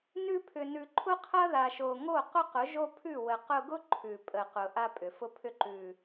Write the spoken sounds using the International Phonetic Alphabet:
n ʉ˧ pʰ ʏ˨ n ʉ˨ ǃʰ ʊ˦ qʰ ɐ˦ ð a˨ ʃ o˨ ŋ o˦˨ q ʊ˦ q ʊ˨˦ ʒ o˦ pʰ ʉ˦˨ w ə˨ q ʊ˧ ɡ ʊ˦ ǃʰ ʉ˨ pʼ ə˨ q ʊ˨ ʔ a˧ pʼ ʏ˨ f ʊ˧ pʰ ʏ˧ ǃ ʉ˨

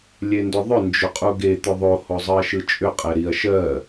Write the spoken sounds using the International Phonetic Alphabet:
lʲ e n d ʏ ðˤ ʏ n d͡ʒ ʏ qʼ u ɡ e t̪ ʏ ðˤ o h o zˤ ɯ ɐ̯ ʃ ɯ t͡ʃʼ ʏ qʼ ɛ ɾ i ɐ̯ ʃ ɜ

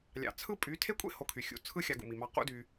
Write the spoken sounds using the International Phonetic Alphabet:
lʲ ɑ̰˨ t͡sʰ ɯ˦ pʼ y˨˦ tʰ e˦ kʷʼ ḛ˦ h o˧ kʰ y˨ xʲ ṵ˦ t͡sʰ ɯ˦ xʲ ɑ˧ ɡ ṵ˨ m i˨ m ɑ˧ q ṵ˦ d y˧

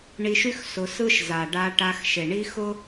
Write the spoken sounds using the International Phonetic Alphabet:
ɳ i˧ ʃ y˦ x s ʊ˧ s ɯ˦ ʃ z a˨ ɖ a˧ ʈ a˧ x ʃ e˨ ɳ i˦ x ʊ˦

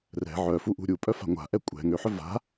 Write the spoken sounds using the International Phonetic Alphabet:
r ɛ̤ ʕ œ f u ʔ ṳ ɾʲ u pʼ œ f a̤ ŋʷ a̤ ʔ ɛ kʷʼ ɛ̤ ŋ ø ħ œ v a̤

